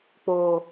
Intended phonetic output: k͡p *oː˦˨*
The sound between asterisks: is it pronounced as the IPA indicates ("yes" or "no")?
no